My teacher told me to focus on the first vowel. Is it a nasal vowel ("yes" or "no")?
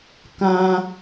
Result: yes